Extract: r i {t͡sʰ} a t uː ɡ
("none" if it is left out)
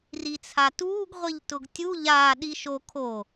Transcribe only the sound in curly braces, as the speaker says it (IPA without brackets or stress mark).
t͡sʰ